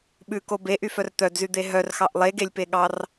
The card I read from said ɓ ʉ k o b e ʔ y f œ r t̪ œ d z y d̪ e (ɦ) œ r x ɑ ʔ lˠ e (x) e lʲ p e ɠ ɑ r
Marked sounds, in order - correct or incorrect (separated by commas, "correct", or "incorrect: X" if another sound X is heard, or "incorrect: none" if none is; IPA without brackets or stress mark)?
correct, incorrect: ɡ